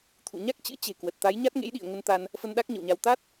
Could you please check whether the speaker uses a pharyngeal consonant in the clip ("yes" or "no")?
no